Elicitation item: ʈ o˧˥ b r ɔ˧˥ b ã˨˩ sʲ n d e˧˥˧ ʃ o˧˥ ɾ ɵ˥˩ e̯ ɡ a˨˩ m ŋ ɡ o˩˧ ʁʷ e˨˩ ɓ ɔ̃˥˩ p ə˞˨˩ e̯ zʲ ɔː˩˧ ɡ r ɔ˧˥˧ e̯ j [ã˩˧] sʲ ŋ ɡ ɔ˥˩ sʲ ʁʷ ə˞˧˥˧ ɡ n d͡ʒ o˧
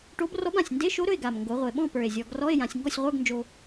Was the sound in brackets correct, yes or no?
yes